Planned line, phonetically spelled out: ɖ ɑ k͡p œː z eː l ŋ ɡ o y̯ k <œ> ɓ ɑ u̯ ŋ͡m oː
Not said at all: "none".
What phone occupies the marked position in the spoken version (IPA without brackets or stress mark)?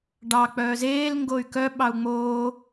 œ